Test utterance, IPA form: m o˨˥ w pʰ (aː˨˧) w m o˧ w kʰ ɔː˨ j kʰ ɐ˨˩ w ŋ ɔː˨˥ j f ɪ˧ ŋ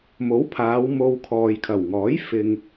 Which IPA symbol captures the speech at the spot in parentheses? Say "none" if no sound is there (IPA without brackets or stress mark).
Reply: aː˨˧